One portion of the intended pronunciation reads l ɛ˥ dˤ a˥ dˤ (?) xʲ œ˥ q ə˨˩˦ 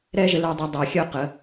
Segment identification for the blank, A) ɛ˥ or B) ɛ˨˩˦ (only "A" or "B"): B